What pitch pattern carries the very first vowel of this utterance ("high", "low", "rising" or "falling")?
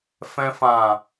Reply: low